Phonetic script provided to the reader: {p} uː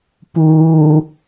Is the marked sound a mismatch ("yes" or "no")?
no